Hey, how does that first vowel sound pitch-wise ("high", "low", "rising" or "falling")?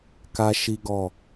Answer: high